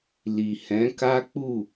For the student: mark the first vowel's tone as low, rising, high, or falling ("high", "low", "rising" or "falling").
low